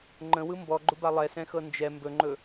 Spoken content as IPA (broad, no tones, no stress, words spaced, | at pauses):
ŋ͡ǃə̃wɯ mbɔɡ͡ǃʊba lˠɛsɛ̃xɤ nd͡ʒɛ mbɵŋ͡ǃɵ